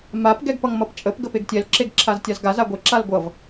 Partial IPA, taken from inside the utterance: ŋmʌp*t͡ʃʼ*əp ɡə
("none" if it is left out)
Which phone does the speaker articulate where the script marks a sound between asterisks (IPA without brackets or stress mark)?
t͡ʃʼ